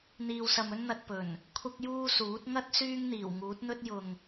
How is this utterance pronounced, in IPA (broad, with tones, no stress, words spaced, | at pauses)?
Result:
n̪iː˧wsɐ˧mɵ˥nn̪ɐ˧t̚ pɵ˨˩n | kʷʰɐ˥k̚juː˥suː˨˥t̚ ŋɐ˥t̚ syː˥ŋn̪iː˨˩wŋuː˨˥t̚n̪ɵ˥t̚ jʊ˨ŋ